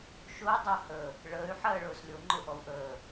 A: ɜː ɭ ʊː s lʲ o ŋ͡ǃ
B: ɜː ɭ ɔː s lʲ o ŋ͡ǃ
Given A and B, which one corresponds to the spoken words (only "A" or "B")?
A